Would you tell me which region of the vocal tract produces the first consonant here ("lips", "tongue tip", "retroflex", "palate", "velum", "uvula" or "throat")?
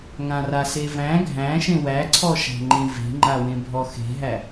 velum